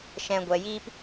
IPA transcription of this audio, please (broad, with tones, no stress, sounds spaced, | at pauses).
ʃ ɛ̃˧ ɡʷ ɛ˧ j i˦ p